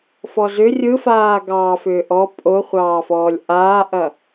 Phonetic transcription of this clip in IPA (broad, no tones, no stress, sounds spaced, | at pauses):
f ɔ z ʏ rʲ ɯ f aː ɡ ɑː f ʏː ʔ ɔ pʼ o χʷ ɑː f ɔː lʲ ʔ aː ʔ ɐ